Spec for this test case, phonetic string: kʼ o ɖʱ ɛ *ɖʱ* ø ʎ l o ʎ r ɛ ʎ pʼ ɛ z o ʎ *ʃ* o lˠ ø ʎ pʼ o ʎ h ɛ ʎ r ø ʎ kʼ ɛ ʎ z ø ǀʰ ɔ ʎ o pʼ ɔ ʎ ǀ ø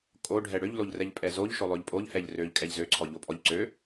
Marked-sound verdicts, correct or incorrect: incorrect: ɽ, correct

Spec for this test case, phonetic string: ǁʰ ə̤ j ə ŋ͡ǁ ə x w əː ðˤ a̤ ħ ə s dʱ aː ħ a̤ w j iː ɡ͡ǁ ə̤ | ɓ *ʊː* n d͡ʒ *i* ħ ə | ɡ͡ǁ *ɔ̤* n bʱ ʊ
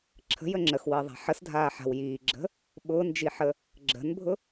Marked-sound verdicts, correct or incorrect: correct, correct, incorrect: ə̤

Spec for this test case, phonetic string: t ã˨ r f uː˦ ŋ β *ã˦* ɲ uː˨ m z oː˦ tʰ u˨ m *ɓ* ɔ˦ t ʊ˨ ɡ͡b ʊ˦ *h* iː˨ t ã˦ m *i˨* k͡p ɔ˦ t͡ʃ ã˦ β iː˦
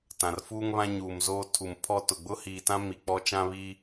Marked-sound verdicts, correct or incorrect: correct, incorrect: pʰ, correct, correct

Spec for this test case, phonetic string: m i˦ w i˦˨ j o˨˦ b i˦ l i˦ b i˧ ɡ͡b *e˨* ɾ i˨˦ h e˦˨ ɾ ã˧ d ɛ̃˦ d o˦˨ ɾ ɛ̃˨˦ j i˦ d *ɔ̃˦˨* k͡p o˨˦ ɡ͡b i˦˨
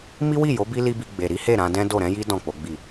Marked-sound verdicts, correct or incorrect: correct, correct

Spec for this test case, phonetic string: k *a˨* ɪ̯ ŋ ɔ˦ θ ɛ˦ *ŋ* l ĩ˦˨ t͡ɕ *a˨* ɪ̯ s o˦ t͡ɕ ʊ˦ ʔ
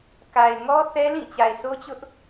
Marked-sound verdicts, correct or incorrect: correct, incorrect: none, correct

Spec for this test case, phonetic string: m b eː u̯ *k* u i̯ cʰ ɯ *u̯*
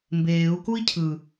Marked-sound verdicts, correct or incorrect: correct, incorrect: none

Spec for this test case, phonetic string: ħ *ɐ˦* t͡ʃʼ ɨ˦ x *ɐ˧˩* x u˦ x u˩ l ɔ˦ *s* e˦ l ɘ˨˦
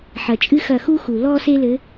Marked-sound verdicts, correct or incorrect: incorrect: ɐ˩, correct, correct

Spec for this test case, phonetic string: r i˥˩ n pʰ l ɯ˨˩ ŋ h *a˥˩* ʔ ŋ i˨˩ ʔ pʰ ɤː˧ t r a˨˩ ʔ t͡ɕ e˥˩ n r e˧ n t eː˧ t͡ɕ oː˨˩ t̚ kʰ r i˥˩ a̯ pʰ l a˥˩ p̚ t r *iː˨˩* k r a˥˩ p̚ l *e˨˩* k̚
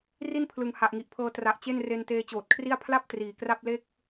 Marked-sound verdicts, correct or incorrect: incorrect: a˨˩, correct, incorrect: e˥˩

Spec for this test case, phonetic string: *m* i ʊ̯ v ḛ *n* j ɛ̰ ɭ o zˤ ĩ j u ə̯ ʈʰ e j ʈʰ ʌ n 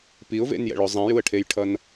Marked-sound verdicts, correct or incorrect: incorrect: p, correct

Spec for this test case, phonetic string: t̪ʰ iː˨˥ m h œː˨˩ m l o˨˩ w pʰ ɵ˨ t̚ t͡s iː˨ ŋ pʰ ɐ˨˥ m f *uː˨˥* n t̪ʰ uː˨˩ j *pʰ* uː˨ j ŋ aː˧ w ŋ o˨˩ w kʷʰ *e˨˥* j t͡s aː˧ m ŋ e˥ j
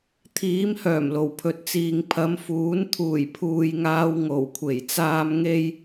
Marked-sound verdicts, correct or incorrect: correct, correct, incorrect: e˨˩

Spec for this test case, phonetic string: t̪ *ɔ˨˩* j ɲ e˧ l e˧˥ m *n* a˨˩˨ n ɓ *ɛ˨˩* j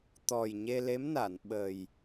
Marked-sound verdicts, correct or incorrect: correct, correct, incorrect: ə˨˩

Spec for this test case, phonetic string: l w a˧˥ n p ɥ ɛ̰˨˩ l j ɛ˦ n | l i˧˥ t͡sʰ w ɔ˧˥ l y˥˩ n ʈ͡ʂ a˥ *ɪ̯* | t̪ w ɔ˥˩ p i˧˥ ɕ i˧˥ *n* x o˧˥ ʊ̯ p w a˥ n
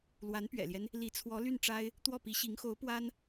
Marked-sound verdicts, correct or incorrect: correct, incorrect: ŋ

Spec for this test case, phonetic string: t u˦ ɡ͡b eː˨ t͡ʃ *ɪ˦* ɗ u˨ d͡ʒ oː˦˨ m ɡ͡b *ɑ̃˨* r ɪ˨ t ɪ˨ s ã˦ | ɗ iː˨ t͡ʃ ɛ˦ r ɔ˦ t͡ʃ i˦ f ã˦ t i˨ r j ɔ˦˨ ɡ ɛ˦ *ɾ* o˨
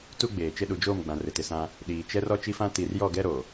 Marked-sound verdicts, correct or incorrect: correct, incorrect: ã˨, correct

